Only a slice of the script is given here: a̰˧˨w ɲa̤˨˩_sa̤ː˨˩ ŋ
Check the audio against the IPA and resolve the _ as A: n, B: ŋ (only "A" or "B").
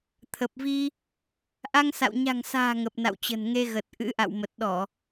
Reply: B